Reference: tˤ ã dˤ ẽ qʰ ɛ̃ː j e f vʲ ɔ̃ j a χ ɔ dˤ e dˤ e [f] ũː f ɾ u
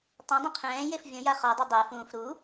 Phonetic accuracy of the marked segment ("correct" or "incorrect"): correct